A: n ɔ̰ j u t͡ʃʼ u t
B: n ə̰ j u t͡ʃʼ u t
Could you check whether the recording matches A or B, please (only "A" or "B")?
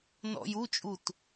A